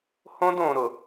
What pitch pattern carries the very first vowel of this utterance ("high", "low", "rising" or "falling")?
high